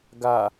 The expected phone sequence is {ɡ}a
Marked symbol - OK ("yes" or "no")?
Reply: yes